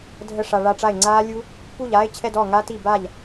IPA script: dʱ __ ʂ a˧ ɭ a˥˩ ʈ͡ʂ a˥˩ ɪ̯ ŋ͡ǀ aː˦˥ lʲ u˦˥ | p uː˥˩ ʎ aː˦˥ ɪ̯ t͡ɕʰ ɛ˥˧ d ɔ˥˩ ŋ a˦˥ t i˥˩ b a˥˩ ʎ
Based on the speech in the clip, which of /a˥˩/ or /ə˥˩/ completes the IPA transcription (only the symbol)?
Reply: ə˥˩